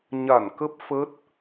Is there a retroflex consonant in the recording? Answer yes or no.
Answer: no